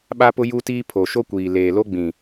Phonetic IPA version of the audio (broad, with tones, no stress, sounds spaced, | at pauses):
ɓ a˦ p ʊ˦ j u˦ t iː˦ pʰ o˨ ʃ o˦ kʷ iː˨ l eː˨ l o˦ ɡ͡b ĩ˨